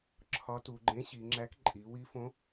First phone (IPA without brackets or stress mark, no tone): ǁʰ